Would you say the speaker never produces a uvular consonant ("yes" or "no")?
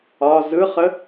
no